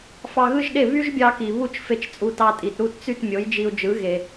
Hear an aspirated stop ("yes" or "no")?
no